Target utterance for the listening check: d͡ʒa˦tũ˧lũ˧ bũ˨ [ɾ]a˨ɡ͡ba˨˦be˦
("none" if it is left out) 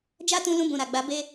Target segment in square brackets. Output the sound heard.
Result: ɾ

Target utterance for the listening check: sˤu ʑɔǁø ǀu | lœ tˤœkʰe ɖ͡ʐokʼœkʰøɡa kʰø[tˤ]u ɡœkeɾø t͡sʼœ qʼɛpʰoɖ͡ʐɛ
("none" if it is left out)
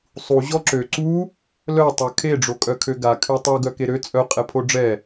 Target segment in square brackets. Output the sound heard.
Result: tˤ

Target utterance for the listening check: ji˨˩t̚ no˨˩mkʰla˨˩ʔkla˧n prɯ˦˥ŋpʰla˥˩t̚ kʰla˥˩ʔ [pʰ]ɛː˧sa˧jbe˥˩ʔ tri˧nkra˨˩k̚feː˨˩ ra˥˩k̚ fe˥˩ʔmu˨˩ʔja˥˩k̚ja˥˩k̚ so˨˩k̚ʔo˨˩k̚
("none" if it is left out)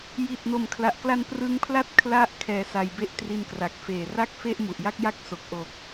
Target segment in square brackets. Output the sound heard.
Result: kʰ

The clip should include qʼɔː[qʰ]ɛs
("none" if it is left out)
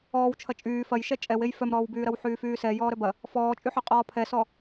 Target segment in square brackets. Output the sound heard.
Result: pʰ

